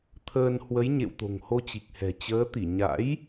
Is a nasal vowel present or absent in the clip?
absent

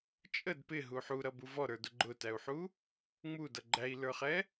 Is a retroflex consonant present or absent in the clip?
absent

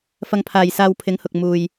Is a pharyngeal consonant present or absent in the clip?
absent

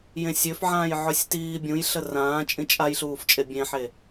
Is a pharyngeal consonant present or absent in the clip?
present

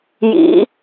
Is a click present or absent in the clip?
absent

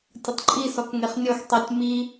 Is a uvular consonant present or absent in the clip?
present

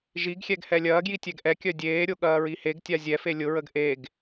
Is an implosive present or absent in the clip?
present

